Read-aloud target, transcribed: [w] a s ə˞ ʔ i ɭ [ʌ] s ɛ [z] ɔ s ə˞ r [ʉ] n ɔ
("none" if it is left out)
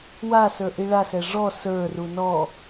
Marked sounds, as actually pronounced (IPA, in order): w, a, ʐ, u

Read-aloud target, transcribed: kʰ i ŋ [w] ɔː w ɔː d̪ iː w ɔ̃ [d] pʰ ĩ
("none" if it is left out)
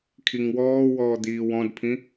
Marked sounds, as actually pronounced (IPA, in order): w, d

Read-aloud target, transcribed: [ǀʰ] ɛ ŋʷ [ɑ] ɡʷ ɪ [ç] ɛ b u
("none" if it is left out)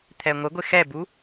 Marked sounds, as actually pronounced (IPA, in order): t̪ʰ, ə, x

